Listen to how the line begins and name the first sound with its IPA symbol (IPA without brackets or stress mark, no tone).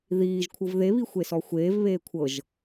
ð